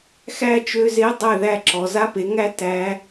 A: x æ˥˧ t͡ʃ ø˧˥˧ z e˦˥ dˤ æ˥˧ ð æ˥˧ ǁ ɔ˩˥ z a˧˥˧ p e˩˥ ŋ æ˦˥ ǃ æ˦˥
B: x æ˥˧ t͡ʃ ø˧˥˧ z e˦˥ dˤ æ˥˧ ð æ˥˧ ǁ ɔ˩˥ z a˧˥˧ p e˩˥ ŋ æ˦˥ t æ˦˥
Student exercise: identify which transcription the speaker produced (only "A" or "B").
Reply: B